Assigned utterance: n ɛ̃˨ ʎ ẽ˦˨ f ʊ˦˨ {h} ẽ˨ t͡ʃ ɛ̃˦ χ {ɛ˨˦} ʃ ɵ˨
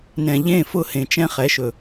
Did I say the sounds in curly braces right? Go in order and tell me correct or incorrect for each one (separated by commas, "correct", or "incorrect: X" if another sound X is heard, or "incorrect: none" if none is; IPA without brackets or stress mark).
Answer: correct, correct